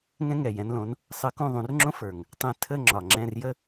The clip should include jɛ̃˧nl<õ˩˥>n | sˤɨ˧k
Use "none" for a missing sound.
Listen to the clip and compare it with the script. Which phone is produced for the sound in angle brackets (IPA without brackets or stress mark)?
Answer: õ˩˥